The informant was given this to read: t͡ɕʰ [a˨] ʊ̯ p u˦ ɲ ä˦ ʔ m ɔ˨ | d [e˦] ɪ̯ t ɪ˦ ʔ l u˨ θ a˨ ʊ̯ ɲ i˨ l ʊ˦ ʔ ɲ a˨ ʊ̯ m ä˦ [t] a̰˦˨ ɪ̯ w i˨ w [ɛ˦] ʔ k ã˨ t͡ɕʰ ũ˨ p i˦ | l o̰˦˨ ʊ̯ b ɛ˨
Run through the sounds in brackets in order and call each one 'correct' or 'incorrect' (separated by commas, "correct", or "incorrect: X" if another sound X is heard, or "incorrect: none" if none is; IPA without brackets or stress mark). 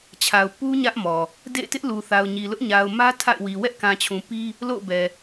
correct, incorrect: ḛ˦˨, incorrect: tʰ, correct